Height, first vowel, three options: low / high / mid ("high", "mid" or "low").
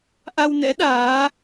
low